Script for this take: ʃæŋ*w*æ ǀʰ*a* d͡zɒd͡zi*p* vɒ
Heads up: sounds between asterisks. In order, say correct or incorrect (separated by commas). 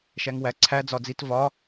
correct, incorrect, incorrect